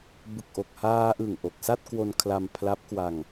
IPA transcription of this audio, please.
b ɯ˨˩ k̚ ʔ o˨˩ k̚ h aː˧ ʔ ɯ˨˩ ŋ ʔ o˨˩ k̚ s a˥˩ t̚ k w o˧ n kʰ l a˧ m pʰ l a˦˥ p̚ k w a˧ ŋ

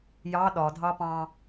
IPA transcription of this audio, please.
j ɑ ɗ ɒ dʱ ɑ p ɑ̃

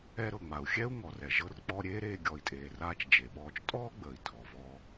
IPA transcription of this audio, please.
ɛ˧ ɾ ɤ˩ ŋ͡m a˩ u̯ xʲ ɛ˥ u̯ ŋ ɔ˩ r ɛ˩ ʒ ɤ˧ r k͡p ɔ˧ ɾʲ eː˥ ɾ eː˧ ɡʲ ɔ˩ i̯ tʼ eː˩ r aː˧ t͡ʃ d͡ʒ e˩ ɓ ɔː˧ t͡ʃ tʼ ɔː˥ ɡ͡b əː˩ i̯ tʰ ɔ˩ v ɔ˧

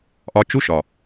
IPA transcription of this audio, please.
ʔ ɒ˧ t͡ʃ u˦ ʃ ɒ˨

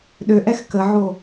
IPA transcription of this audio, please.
ɗ ø ʔ ɛ x k ə ʕ o

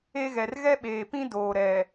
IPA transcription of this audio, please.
e˦ ɣ ɛ˨ r ɣ ɛ˦ ɓ eː˨ p ĩ˦ d oː˨ ɾ ɛ˨

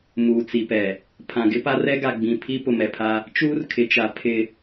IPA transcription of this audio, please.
m uː˨ t͡s i˨ p ɛ˨ | pʰ ã˨ ɡ ɪ˦ p a˦ r ɛ˦ ɡ a˨ ɡ͡b ĩ˨ pʰ i˦ p ʊ˨ m ɛ˨ pʰ a˦ | t͡ʃ uː˦ r kʰ ɪ˨ t͡ʃ a˨˦ pʰ ɪ˦

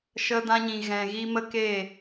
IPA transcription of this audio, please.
ʃ ə˧ d ã˧ ɲ ĩ˨ ɣ ɛ̃˨ ɣ i˧ m ə˦ k e˦˨

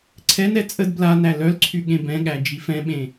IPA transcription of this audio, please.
ǀʰ ɛ n ɛ t͡sʼ ə d b l a n æ l œ l ǀʰ y ɠ ẽ b ɛ̃ ɠ æ d͡ʒ i f ɛ̃ ɓ ẽ

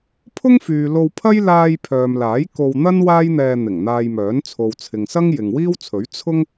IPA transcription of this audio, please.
pʰ ʊ˥ ŋ f yː˨ l o˧ w pʰ ɐ˥ j l aː˧ j pʰ œː˨ m l aː˨˥ j k o˧ w n̪ ɐ˥ n w aː˥ j n̪ ɛː˧ n̪ ɪ˨˩ ŋ n̪ aː˧ j m œː˨˥ n t͡sʰ o˨ w t͡sʰ ɪ˨ ŋ s ɐ˥ ŋ j ɪ˨ ŋ w iː˥ w t͡sʰ ɵ˨˥ ɥ t͡sʰ ʊ˥ ŋ

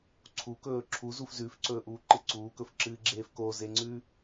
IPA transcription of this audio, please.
ǀʰ u k ɵː ǁʰ u z u f z ʉ f ǀ ɵː ʔ uː ǃ ɨ ǀ uː k ɵ f ǁ ɨː ɡ͡ǁ eː f k o z e ŋ͡ǀ ʉ

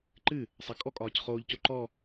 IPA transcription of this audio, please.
ǃ ɨ | sˤ ɑ kʼ ɔ kʼ ɒː c χ oː ʎ c o ǃ ɔ

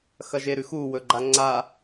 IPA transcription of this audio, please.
x ɐ ʒ e ɾ ʉ x u w ɵ ɡ͡ǃ a ŋ͡ǀ a

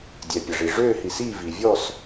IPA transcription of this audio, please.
dʲ ɛ˩ pʲ ɐ˩ ʐ i˩ ʐ øː˦˨ h i˩ s iː˦˨ v i˩ vʲ ɔ˦˨ s

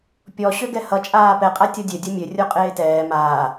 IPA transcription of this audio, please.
pʲ ɔ ɕ ø ɡ ɛ h ʌ t͡ʃʼ aː p ɛ qʼ a tʲ ɔ dʲ ø dʲ o mʲ ø rʲ o qʼ eː t ɛː m aː

